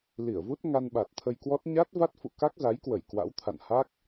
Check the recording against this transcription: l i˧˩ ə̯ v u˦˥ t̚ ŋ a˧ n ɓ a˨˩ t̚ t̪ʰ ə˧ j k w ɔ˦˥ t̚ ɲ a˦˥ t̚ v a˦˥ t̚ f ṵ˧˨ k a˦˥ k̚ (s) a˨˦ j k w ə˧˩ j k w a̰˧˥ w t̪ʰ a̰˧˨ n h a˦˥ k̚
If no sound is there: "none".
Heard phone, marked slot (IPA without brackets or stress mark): z